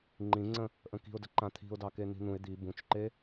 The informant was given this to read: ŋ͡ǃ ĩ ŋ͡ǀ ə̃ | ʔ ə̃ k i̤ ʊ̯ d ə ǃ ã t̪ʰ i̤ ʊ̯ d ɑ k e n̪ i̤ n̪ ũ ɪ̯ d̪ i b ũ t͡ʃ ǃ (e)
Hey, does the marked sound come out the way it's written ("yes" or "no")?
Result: yes